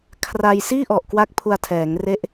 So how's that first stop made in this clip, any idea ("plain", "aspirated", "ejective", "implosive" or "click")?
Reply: aspirated